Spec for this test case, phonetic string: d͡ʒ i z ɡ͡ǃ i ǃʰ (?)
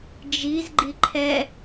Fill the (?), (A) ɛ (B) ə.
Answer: A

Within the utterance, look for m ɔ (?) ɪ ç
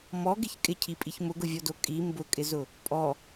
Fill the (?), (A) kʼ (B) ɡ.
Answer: B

